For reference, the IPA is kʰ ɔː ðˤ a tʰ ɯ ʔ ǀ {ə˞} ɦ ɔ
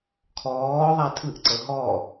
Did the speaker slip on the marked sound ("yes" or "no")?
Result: yes